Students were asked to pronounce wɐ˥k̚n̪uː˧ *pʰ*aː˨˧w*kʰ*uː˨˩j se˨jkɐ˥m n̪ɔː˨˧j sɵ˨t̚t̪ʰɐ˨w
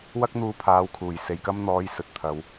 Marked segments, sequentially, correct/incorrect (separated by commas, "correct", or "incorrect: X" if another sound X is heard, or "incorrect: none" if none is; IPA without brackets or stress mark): correct, correct